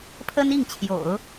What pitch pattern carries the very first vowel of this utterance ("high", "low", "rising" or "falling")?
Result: high